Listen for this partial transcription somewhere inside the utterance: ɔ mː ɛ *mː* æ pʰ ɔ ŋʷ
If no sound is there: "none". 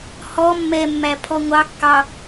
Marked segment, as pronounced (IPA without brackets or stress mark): mː